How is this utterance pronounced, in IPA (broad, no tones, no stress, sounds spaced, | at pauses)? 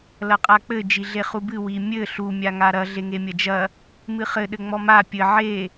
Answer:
l ɐ qʼ a k͡p ɘ d͡ʒ i ɮ e χ u b ɨ w i mʲ ɘ ɬ u mʲ a ŋ a ɾ ɐ ɮ e ŋ e mʲ ɐ d͡ʒ ɐ | m ɨ χ ɘ ɗ ɘ ŋ͡m ɔ m a pʲ ɘ ʕ e